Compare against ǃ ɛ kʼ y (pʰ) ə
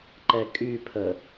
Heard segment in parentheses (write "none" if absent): pʰ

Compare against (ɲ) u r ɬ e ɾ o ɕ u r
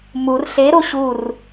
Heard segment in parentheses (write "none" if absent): m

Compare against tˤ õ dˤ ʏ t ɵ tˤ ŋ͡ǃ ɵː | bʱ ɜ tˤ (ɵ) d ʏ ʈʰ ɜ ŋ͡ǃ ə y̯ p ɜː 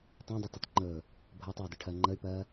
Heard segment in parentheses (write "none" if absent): ɵː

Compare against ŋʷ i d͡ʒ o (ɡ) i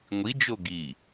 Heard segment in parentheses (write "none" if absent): ɡ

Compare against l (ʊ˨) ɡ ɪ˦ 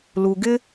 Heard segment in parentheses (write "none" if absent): u˨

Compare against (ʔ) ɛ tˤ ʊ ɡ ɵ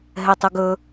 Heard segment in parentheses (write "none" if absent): ɦ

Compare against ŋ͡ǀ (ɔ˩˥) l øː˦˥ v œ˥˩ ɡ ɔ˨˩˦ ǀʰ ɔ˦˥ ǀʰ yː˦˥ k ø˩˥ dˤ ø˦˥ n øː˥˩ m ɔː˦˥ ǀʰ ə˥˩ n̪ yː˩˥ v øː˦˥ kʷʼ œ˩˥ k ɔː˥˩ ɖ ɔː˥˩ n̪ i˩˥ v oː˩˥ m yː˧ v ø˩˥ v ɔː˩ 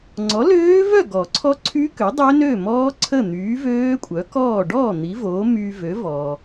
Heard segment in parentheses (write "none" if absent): ɔ˩˥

